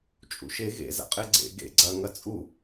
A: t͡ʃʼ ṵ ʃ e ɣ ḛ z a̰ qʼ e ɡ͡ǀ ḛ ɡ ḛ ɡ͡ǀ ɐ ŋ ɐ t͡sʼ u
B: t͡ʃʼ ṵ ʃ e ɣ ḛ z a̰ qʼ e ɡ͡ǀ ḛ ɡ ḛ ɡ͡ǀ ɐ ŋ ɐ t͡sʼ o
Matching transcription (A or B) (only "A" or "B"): A